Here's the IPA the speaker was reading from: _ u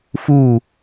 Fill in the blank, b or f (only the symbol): f